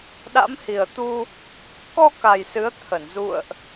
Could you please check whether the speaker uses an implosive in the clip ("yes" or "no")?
yes